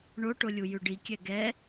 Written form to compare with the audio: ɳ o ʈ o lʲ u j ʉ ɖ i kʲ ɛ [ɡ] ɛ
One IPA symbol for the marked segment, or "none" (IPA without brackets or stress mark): ɡ